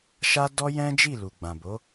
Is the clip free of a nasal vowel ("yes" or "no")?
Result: no